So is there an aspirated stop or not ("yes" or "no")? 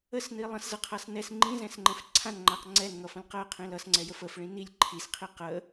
yes